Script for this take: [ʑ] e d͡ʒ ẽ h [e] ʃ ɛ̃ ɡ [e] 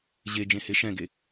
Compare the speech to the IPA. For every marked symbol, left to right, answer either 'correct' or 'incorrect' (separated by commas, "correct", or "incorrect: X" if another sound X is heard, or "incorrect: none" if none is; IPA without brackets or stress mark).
correct, correct, correct